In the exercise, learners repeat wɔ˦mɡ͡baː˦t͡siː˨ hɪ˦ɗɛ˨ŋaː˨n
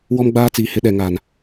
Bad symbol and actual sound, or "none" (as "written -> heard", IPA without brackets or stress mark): none